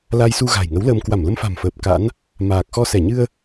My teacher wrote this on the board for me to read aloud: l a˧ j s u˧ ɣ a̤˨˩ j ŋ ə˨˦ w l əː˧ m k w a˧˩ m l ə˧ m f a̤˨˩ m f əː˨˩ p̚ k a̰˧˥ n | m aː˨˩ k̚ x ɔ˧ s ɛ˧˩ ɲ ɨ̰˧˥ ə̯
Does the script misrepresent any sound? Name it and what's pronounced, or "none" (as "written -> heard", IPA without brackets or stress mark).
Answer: ɨ̰˧˥ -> ɨ˧